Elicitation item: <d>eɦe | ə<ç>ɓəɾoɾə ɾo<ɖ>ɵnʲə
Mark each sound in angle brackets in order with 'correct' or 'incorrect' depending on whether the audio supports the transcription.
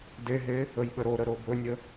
correct, incorrect: j, incorrect: b

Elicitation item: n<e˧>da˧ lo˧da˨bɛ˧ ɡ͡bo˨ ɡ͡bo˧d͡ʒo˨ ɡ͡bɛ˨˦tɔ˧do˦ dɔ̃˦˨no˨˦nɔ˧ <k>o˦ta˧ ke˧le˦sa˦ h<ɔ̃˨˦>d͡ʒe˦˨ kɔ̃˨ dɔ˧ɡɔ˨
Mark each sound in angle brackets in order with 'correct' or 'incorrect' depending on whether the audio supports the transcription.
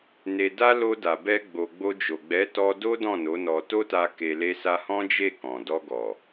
incorrect: e˨, incorrect: t, incorrect: ɔ̃˦

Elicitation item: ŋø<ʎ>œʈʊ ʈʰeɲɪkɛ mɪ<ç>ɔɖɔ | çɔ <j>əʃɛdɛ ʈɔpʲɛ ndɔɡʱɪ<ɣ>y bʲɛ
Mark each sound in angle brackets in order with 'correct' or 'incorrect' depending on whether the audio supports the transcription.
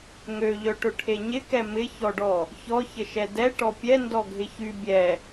correct, correct, incorrect: ç, incorrect: ç

